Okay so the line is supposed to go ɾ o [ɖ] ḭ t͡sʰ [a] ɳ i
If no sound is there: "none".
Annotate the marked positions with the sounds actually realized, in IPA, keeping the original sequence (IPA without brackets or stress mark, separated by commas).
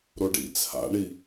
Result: ɖ, a̰